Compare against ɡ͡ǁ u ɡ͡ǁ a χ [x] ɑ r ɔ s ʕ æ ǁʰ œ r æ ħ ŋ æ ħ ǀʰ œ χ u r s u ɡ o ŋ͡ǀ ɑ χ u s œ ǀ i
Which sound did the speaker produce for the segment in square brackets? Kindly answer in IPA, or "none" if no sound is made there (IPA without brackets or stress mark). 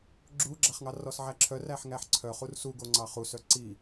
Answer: ŋ